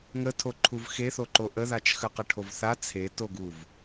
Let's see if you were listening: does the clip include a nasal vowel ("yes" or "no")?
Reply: no